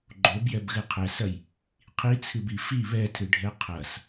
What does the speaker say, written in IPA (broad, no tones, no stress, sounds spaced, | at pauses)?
ɡ͡ǃ o b j ɛ b ɣ ɨ qʰ ɛ s ɐ j | qʰ i t͡sʰ ɨ b i f i β ɛ tʰ ɨ ɖʱ ɛ qʰ ɐ s